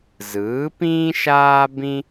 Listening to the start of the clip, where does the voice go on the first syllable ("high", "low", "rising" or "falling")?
rising